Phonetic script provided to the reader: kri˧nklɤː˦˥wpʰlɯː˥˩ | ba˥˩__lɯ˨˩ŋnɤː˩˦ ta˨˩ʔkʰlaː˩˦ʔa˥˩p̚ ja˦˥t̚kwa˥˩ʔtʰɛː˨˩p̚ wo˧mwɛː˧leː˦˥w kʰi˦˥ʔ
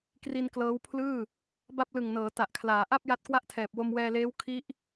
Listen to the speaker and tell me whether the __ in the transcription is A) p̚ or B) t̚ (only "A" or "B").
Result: A